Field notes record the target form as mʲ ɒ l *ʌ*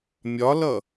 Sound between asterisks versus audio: correct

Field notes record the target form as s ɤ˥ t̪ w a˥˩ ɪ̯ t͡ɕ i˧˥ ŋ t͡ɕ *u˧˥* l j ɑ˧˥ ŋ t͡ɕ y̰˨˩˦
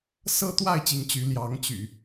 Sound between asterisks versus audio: incorrect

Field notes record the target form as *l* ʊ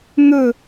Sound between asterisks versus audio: incorrect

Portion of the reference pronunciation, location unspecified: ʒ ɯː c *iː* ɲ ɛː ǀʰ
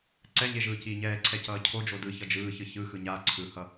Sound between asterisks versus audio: correct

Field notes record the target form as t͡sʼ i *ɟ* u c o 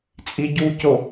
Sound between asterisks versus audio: correct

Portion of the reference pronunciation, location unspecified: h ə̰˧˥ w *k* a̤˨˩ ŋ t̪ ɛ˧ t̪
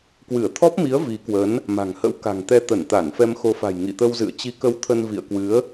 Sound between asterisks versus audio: correct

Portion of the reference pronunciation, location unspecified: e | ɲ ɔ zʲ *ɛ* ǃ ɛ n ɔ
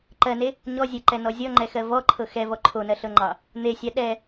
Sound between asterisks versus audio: incorrect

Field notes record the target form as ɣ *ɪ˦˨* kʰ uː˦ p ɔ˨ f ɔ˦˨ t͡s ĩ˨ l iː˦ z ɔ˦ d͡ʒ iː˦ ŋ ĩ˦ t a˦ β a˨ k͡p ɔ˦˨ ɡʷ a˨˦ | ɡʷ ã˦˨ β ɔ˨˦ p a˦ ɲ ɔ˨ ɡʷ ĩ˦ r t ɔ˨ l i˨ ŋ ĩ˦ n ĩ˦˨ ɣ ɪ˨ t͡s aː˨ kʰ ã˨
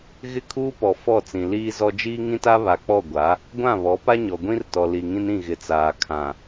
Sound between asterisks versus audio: correct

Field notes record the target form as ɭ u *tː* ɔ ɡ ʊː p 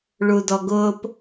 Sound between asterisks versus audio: incorrect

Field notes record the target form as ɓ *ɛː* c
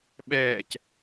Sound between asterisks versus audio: correct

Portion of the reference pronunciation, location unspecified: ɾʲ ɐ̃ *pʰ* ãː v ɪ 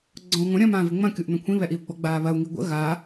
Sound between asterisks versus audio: incorrect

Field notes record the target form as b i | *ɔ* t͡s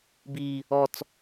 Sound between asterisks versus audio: correct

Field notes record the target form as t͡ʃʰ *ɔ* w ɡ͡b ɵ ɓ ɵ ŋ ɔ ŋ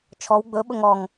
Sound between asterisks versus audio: correct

